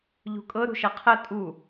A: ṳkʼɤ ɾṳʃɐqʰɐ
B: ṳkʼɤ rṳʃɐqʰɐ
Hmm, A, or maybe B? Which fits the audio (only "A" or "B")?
A